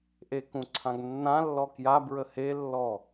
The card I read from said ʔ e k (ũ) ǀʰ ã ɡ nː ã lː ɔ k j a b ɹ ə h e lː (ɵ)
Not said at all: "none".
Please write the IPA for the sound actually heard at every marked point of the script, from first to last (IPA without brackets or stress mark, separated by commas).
ũ, ɔ